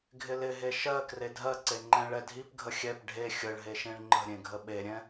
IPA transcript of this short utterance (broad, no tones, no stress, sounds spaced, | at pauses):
ɡʱ ɪ l ɪ ɦ e ʃ ɜ k r e dʱ ɜ ǀ e ŋ͡ǃ ɛ̃ ɭ ɛ dʱ i p ɡʱ ə xʲ ɛ p ɖʱ e xʲ ə ɭ ɦ e ʃ ẽ ɭ ŋ͡ǃ ə̤ ɾʲ ẽ ɡʱ ə ɓ e ɾʲ ɛ̃